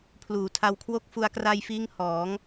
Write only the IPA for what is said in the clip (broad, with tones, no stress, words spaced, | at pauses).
pʰluː˩˦tʰa˧wkʰwo˥˩k̚ fu˧a̯kra˧jfiː˦˥ŋ hɔː˩˦ŋ